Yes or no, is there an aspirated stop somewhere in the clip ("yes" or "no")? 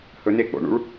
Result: no